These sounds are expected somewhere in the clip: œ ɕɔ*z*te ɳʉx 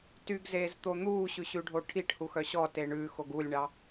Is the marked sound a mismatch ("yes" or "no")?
yes